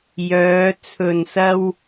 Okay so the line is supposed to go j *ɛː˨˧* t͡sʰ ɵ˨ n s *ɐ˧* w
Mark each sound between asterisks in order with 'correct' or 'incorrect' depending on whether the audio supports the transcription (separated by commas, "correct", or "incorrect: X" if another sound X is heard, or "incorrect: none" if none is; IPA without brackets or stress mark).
incorrect: œː˨˧, correct